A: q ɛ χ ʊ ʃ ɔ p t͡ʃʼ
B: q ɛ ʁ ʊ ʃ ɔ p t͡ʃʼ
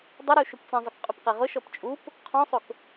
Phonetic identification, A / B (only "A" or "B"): B